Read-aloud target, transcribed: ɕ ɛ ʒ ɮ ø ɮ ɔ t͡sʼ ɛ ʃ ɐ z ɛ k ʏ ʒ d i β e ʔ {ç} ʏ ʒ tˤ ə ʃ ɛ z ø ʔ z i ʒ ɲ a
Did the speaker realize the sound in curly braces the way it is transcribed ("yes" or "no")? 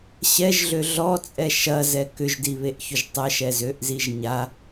yes